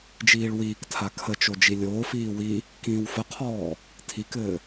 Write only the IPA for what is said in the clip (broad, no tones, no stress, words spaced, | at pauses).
d͡ʒiːɭwiːktʰa kʰət͡ʃo d͡ʒilʲoːfiː wi | kĩːwfəqʰɔː | tʰikɘː